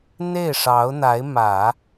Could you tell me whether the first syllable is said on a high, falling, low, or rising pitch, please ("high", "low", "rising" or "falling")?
falling